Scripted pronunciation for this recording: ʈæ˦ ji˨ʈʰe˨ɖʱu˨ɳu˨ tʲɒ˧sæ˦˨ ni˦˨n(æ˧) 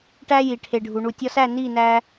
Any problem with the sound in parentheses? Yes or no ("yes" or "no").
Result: no